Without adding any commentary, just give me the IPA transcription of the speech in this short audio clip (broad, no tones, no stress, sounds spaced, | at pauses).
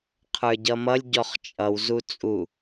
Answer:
qʰ ə˞ ɟ ʌ m ʌ lʲ ɟ ɔ χ t͡ʃʼ ʌ w z u t͡sʼ u